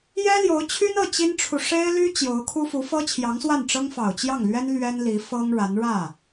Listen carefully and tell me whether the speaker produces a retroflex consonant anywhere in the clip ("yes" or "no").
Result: yes